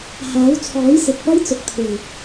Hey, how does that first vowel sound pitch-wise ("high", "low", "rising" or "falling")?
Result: rising